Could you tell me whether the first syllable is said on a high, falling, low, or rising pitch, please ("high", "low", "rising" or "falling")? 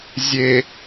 low